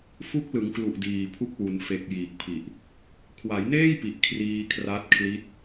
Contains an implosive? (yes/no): no